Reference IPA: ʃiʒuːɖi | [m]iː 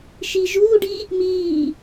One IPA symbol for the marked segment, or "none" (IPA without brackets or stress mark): m